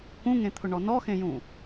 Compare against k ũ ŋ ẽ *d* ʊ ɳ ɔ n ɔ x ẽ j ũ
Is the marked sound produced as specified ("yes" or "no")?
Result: no